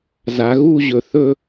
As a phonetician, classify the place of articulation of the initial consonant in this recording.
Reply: alveolar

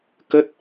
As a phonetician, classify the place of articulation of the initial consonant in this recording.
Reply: velar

